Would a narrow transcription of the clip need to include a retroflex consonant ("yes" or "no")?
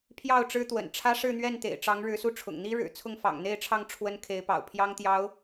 yes